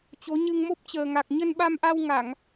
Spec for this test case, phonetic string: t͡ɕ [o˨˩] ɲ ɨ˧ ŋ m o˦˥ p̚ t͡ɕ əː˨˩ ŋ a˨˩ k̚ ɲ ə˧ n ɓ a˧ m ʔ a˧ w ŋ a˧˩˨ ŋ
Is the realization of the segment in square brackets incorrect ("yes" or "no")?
yes